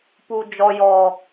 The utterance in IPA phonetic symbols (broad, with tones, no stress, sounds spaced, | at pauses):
p u˨ d͡ʒ ɔ˨ j ɔ˨